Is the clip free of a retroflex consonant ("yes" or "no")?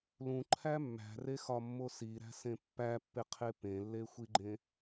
yes